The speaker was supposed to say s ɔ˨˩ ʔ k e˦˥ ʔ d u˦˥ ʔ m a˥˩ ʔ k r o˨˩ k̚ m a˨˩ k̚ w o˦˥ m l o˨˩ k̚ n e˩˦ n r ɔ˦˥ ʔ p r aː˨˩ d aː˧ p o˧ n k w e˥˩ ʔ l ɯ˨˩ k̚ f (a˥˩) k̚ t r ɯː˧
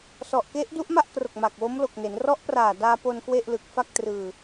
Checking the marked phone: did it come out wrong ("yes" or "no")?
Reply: no